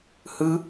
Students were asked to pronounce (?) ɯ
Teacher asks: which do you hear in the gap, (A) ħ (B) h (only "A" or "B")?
B